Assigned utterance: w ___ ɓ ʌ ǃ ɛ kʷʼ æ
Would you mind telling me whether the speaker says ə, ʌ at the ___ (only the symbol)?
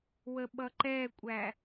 ə